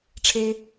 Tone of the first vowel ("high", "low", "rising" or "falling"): high